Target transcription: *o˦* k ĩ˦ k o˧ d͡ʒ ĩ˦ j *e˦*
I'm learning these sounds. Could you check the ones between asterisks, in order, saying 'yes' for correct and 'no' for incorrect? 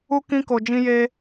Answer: no, yes

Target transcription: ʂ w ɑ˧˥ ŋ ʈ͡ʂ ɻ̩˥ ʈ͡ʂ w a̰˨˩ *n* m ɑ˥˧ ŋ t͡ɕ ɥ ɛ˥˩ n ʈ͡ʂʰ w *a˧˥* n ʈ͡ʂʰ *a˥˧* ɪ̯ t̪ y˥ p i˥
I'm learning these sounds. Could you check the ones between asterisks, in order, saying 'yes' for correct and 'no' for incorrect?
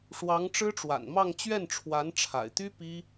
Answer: yes, yes, no

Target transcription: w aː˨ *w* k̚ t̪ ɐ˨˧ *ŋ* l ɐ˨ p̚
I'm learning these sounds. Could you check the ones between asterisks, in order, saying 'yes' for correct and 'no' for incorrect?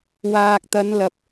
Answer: no, no

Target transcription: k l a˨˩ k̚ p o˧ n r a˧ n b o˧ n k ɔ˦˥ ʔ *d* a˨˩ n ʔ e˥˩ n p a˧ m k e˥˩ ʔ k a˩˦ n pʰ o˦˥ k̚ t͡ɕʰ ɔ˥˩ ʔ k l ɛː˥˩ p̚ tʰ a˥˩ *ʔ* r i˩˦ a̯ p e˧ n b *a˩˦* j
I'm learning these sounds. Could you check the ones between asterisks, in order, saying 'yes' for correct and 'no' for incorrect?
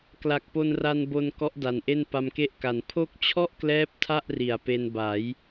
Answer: yes, yes, yes

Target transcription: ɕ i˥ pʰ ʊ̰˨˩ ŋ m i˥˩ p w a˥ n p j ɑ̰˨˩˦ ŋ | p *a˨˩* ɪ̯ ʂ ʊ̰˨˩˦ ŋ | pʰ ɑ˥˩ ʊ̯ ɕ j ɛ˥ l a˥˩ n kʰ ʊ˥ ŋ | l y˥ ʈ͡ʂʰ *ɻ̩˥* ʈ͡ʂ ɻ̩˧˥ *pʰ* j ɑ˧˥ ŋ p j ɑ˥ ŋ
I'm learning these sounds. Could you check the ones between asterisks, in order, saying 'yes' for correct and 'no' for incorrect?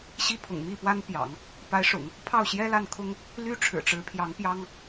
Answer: no, no, yes

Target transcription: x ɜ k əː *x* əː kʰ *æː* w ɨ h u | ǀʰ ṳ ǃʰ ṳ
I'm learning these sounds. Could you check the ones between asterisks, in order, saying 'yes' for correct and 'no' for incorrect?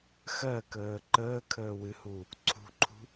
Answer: no, no

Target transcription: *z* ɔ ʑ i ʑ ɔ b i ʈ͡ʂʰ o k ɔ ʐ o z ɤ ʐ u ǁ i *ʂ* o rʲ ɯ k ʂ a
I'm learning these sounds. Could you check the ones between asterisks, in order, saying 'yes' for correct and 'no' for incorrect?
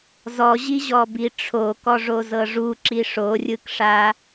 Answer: yes, yes

